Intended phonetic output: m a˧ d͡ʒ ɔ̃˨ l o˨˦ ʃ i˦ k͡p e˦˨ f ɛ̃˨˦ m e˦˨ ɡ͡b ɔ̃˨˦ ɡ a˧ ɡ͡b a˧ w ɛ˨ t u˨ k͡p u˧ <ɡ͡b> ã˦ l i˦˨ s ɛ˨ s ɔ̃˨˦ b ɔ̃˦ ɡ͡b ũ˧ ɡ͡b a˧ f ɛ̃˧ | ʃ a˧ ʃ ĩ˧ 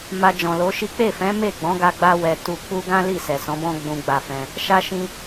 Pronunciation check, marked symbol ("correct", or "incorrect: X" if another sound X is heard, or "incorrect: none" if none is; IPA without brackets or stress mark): incorrect: ɡ